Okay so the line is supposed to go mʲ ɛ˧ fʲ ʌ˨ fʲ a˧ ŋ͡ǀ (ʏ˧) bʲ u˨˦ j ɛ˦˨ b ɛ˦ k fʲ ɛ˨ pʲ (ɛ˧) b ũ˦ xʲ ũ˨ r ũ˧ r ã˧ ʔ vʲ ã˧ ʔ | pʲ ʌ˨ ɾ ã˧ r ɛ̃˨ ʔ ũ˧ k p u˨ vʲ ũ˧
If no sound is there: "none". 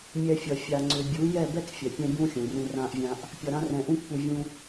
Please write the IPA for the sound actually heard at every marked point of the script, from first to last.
ʏ˧, ɛ̃˧

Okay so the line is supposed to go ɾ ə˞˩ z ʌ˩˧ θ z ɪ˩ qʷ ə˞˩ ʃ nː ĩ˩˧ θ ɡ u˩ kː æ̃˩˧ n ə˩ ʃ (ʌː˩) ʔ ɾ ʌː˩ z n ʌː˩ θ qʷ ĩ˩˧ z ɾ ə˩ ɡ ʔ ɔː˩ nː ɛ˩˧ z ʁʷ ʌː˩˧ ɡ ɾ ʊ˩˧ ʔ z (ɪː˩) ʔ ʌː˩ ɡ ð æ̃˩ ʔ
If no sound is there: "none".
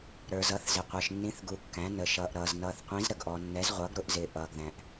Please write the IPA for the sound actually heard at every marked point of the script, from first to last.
ʌː˩, ɪː˩

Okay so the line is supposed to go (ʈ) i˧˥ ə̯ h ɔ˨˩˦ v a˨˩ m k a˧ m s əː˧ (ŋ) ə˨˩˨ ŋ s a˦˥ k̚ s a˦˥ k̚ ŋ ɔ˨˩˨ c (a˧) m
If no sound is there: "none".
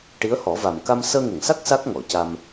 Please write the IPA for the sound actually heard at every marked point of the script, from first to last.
ʈ, ŋ, a˧

